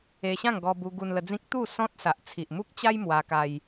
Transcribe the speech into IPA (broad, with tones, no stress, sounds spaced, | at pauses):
e˧ ɕ ã˥˧ ŋ ɡ ɔ˧ b u˧ ɡ u˧ n l ə˧ d͡z ĩ˦ k̚ t̪ u˥˧ s ɔ̃˦ t̚ s a˨ ʔ t͡sʰ i˨ ʔ m u˦ k̚ t͡ɕ a˦ j m w a˧ k a˧ j